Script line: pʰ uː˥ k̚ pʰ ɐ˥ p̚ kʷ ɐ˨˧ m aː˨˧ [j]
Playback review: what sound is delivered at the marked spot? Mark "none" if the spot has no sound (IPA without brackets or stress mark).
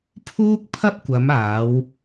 w